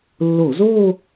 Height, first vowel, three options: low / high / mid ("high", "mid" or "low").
mid